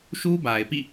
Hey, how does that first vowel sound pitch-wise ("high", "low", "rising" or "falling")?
high